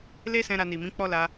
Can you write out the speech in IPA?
l e˦ s ɛ̃˧ ɾ a˧ n i˨ m ĩ˨˦ k͡p ɔ˦ l a˧

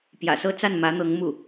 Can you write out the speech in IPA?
p j ä̰˨˩ s ɤ˥˧ t͡s a˥˩ n m ä˧˥ n̪ ɤ˧˥ ŋ m u˥˩

